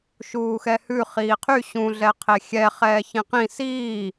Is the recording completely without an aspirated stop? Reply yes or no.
no